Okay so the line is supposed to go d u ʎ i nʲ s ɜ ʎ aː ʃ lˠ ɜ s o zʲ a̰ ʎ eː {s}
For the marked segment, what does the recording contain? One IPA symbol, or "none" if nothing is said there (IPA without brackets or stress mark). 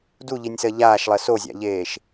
ʃ